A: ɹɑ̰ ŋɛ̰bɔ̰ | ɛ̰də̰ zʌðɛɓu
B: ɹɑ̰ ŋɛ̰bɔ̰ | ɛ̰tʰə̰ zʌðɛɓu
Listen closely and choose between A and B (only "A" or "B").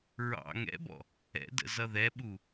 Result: A